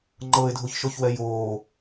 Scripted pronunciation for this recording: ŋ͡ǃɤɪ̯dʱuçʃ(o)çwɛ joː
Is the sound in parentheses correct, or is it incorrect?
correct